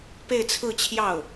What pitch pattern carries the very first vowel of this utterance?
falling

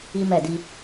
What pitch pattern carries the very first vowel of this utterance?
high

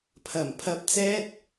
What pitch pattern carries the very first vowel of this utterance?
low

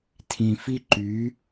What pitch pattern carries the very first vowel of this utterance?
low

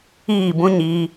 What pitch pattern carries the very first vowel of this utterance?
falling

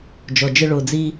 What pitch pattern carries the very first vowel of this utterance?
low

